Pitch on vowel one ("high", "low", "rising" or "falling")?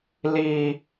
high